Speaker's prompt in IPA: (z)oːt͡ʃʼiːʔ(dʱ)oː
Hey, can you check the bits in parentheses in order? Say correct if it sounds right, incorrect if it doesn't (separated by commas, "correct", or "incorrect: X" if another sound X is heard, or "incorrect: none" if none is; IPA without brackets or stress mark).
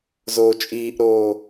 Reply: correct, incorrect: ɾ